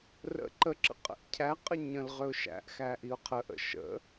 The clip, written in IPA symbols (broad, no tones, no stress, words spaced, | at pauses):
rə̰ ǃəǁə̰ qʼə̰ʔcʰæqʼə ɲə̃l ʁøʊ̯ʃæ̰ʔxæ ʔiʊ̯qʰəʔə̰ ʃə̰